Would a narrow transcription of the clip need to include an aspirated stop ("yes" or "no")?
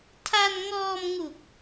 yes